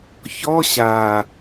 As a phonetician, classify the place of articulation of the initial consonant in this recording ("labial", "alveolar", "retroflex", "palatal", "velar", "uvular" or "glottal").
palatal